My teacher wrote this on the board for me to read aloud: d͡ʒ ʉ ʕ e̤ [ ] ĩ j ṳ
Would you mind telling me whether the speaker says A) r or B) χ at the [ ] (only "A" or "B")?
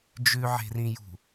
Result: A